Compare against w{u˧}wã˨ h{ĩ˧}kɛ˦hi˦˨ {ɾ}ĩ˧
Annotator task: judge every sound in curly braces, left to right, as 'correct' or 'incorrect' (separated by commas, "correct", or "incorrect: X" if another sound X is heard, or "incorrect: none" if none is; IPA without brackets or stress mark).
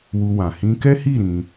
correct, correct, correct